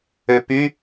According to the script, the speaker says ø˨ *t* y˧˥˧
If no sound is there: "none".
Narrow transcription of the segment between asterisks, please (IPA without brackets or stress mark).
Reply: p